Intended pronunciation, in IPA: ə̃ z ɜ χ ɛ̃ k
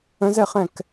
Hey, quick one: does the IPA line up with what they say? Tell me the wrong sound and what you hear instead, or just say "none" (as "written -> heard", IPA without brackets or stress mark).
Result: ɜ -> ɛ